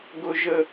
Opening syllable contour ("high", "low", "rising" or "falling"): high